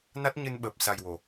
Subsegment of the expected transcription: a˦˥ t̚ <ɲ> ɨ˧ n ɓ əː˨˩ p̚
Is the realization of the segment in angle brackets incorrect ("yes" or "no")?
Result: no